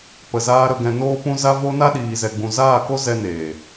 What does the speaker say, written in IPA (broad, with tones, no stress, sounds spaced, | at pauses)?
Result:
p ə˨ z aː˧ ɾ ə˧ ɡ ɛ̃˧ n oː˦ p ũ˦ z a˧ v o˧ n a˦ ɗ iː˨ z ɛ˨ ɡ͡b ũ˨ z aː˦˨ k o˦ z ɛ˧ n eː˨